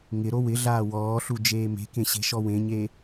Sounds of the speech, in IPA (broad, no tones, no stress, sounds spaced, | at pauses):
ŋ ɪ ɾ o w ɪ ɮ aː w ɔː ɬ u d͡ʒ eː m e̤ k ẽ ɕ e̤ ʃ ɔ w ẽ ɲ e